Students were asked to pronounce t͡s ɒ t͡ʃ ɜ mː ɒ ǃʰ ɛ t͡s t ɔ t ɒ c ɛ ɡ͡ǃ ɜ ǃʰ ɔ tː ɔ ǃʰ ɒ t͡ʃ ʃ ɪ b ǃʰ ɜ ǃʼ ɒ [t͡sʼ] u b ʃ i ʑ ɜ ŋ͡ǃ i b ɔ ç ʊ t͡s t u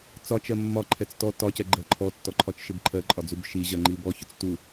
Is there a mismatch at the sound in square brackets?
yes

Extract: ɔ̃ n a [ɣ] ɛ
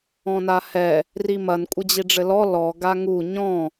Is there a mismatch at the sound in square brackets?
yes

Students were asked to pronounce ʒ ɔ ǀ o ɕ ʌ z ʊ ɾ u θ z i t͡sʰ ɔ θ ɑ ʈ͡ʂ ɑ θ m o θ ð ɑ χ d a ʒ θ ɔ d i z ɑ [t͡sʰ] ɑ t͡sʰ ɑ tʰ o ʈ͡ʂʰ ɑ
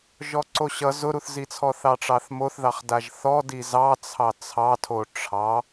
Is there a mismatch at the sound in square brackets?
no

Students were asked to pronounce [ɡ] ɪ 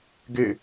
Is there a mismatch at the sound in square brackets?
no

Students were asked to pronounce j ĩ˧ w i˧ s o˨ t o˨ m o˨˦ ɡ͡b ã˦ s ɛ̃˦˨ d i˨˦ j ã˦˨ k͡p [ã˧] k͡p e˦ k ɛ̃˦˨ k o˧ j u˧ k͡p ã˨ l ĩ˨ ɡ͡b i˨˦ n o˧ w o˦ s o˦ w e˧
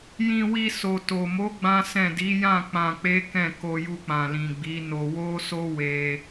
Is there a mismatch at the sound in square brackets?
no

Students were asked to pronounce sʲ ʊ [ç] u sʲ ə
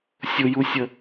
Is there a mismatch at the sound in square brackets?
yes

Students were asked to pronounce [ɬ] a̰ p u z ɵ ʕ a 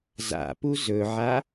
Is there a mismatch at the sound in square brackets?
yes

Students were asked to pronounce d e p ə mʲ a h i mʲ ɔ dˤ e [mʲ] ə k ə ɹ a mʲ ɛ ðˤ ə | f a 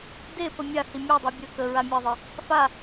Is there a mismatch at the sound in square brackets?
yes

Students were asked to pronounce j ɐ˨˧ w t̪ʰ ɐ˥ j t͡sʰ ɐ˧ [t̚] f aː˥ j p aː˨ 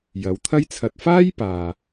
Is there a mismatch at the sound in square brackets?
no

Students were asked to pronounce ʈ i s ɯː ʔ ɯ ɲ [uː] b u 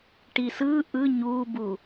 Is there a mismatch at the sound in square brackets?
no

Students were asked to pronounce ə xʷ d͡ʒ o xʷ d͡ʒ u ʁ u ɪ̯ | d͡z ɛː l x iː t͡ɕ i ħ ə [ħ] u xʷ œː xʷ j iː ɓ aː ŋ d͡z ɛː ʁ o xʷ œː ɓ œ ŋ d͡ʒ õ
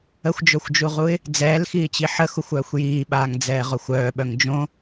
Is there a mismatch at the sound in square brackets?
yes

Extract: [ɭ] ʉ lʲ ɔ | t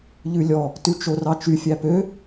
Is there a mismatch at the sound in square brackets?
yes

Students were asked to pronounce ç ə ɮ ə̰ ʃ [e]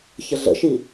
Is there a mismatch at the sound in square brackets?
yes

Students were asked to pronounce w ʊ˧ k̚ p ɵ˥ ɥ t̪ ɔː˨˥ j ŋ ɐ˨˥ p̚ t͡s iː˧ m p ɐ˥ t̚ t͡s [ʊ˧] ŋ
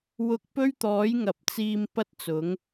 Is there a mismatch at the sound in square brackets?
yes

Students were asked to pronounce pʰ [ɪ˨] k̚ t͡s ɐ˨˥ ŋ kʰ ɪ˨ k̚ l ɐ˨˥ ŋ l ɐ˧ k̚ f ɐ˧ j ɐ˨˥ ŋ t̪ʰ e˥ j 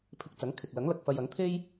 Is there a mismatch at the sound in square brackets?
yes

